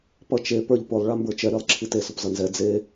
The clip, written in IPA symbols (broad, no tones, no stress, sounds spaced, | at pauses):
p ʌ t͡ʃ e p ə˞ ʎ p ʊ lˠ ɭ a m b ə˞ t͡ʃ ɛ ɾ i lˠ ǁʰ i t e s ʊ p z ʌ n z ɛ d͡z e